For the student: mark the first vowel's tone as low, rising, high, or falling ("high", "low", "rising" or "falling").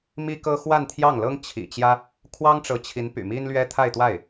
high